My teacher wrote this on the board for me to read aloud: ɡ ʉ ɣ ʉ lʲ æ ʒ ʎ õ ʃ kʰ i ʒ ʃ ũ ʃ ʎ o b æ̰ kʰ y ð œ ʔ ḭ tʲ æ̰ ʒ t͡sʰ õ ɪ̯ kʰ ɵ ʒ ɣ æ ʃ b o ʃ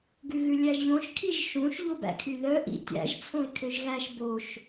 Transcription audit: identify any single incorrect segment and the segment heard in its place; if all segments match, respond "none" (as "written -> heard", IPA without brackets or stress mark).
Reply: ɵ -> ø